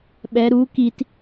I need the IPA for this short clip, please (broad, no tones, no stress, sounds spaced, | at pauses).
ɓ ɛ ɾ u k i t